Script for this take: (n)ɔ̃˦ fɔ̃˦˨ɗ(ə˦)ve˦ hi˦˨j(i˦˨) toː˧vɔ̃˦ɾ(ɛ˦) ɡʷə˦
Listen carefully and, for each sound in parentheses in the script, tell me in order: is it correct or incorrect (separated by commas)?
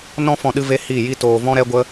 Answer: correct, incorrect, incorrect, correct